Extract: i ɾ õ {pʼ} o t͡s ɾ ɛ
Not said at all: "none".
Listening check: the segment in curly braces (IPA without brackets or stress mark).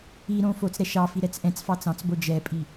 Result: f